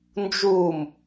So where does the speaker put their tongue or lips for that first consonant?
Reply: tongue tip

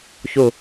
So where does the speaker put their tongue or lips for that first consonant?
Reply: palate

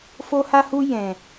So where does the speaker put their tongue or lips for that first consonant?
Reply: lips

